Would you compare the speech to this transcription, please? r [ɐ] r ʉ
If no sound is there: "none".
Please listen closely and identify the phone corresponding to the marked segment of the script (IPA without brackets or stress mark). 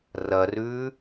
ɐ